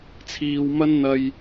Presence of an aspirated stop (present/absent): present